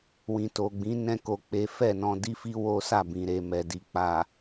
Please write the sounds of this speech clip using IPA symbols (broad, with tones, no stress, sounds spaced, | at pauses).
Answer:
w ĩ˨ t o˨ ɡ͡b ĩ˨˦ n ɛ̃˦ k o˧ k͡p e˦ f ɛ˦˨ n ɔ̃˧ d i˦ f i˦ w o˦ s a˦˨ b ĩ˨ ɾ e˨ m ɛ˨ d i˨ k͡p a˨